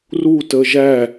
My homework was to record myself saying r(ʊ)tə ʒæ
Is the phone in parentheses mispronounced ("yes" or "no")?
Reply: yes